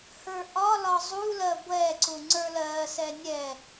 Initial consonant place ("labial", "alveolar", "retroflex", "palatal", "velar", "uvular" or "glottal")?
glottal